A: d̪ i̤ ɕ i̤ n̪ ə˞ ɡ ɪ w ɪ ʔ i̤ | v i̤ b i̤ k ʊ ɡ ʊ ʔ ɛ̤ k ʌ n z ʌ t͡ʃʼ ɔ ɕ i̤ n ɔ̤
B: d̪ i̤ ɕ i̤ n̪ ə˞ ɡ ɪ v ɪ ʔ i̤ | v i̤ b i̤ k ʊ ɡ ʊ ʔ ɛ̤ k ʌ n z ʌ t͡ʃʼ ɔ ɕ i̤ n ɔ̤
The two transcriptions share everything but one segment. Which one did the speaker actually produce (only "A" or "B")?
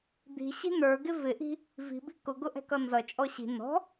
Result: B